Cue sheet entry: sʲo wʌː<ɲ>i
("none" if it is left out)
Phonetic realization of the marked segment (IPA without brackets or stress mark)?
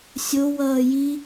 j